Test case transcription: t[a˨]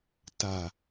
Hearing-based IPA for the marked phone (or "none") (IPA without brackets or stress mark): a˨